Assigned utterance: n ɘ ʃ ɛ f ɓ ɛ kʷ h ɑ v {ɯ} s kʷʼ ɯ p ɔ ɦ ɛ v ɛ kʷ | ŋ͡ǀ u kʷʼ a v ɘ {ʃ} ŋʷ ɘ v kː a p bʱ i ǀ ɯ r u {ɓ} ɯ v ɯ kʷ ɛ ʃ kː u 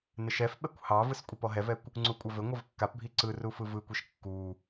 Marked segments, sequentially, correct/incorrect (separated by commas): correct, incorrect, incorrect